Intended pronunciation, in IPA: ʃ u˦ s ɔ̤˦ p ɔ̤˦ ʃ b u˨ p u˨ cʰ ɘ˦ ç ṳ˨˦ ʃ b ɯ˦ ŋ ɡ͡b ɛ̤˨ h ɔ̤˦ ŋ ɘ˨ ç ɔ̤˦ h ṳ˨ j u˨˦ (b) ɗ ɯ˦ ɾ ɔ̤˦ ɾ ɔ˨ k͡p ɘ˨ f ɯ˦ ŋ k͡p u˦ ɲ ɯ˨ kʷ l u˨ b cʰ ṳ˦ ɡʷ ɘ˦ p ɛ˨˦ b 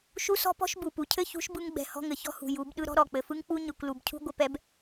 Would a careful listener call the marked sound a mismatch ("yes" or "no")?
no